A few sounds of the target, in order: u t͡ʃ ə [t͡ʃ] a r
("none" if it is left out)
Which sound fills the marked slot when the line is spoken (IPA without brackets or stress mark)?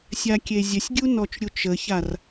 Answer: ç